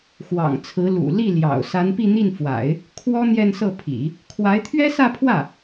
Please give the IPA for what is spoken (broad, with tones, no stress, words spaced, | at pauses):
xwɑ̰˨˩ŋt͡sʰɹ̩˧˥ lṵ˨˩ li˥˩ ljɑ̰˨˩ʊ̯ sa˧˥npi˥˧n̪i˥˩n fwa̰˨˩˦ɪ̯ | kʰwɔ˥ n̪jɛ˥˧nsɤ˥˩pʰḭ˨˩˦ | kʰwa˧˥ɪ̯t̪ʰɥɛ˥sä˥˧pʰwä˥˩